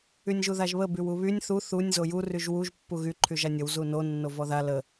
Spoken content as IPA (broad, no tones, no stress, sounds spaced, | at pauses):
y nʲ ʒ u ð a ʒ β ə b y w u β y nʲ θ u θ u nʲ z o j u r y ʒ w u ʒ pː u ɣ y ǃʰ y ʒ a nʲ ə w z u n o nː o v ɔ ð a l ə